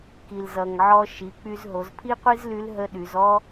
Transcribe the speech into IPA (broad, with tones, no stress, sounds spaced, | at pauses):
k i˩ l z ʌ˩ ŋ ʕ ɔ˧ ʃ i˩˧ k͡p y˧ z ɦ o˩˧ z pʰ i˥ qʷ i˥ z l y˧˥ l ɦ ə˧˥ ɗ y˩˧ z ɔ˥